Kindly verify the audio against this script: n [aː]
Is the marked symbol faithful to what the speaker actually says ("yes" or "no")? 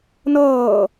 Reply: no